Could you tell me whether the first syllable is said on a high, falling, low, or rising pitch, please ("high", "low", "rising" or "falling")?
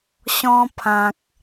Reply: high